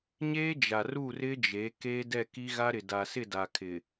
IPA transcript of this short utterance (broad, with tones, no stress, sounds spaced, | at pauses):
ɲ eː˦ d͡ʒ a˨ r u˦˨ r ɪ˦ d͡ʒ e˨˦ k eː˦ d ɛ˦˨ k i˦ ɣ a˦ ɾ ɪ˨ d a˨ s ɪ˦˨ d a˨ kʰ ɪ˨